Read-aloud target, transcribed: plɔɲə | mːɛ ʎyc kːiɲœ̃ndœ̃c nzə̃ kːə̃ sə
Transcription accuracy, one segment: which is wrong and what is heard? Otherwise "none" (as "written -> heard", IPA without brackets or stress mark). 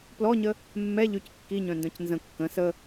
none